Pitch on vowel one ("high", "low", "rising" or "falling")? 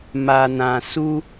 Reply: low